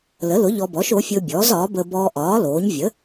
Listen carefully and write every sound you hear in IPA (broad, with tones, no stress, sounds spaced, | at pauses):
l ə˩˥ l ʊ˩˥ ʎ ɔ˧ b ɔ˩˥ ʃ o˩˥ fʲ ʊː˧ bʲ ɔː˩˥ z ɒː˩˥ b əː˧ b ɔː˧ ʔ ɒː˩˥ l oː˩˥ ɲ vʲ ə˩˥